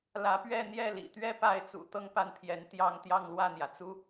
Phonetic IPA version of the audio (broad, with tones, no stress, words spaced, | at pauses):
lä˧˥pɥɛ˥˧ n̪jɛ˥˩lḭ˨˩ t̪ɥɛ˥˧pa˥˩ɪ̯ t͡sṵ˨˩t̪ɤ˥˧ŋpa˥˩npʰjɛ˧˥n t̪jɑ˥˧ŋt̪jɑ˥˧ŋ lwä˥˩n̪jä˩t͡su˥